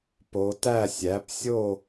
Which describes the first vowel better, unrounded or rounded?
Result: rounded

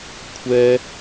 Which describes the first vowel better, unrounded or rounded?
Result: unrounded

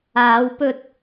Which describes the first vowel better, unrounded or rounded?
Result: unrounded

